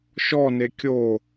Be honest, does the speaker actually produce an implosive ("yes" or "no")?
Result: no